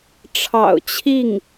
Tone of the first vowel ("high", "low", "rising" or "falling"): low